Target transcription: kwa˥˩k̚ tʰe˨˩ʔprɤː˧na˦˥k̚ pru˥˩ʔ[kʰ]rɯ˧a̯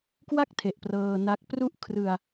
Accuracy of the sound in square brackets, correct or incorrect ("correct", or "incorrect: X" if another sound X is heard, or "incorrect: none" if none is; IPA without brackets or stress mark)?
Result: correct